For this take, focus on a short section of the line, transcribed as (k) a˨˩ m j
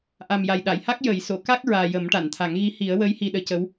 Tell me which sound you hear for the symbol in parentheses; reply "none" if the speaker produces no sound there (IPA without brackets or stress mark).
ʔ